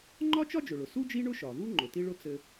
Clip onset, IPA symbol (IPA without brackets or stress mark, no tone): ŋ͡ǃ